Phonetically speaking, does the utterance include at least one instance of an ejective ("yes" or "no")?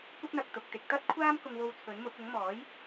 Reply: no